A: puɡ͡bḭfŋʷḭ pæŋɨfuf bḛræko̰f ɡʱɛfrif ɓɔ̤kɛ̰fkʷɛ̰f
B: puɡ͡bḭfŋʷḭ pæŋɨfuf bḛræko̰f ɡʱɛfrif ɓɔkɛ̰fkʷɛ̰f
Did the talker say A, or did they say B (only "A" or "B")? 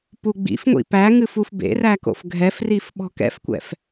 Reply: A